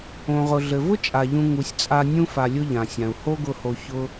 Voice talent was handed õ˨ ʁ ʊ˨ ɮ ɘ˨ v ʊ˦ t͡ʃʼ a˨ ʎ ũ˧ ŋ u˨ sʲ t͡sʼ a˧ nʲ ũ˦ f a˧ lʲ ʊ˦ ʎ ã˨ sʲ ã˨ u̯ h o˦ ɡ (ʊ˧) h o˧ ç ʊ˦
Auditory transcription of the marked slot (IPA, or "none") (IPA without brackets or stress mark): ʊ˧